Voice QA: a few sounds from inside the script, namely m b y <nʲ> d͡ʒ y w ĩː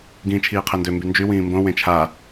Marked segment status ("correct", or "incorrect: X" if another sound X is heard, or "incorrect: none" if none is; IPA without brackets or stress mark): incorrect: n